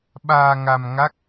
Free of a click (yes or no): yes